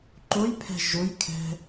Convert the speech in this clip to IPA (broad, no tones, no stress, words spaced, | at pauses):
ǃojpʰɛ̤ ʒʊjkʰɛ̤